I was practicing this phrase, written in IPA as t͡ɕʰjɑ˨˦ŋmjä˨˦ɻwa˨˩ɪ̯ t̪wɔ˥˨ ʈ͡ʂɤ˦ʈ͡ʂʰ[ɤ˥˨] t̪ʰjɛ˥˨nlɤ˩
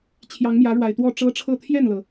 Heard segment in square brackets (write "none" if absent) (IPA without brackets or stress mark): ɤ˥˨